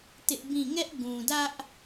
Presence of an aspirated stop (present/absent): absent